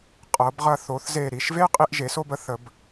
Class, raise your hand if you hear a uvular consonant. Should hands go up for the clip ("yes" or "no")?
yes